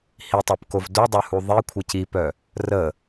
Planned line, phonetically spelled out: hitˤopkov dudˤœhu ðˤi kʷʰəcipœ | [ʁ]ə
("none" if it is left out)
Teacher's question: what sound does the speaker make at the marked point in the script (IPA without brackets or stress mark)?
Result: r